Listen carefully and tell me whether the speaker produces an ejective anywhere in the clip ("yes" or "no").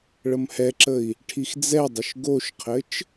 no